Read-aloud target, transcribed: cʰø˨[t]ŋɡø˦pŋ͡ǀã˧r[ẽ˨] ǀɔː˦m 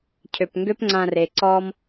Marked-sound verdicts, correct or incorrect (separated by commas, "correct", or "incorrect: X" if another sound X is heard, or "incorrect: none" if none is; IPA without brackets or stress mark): incorrect: p, incorrect: e˨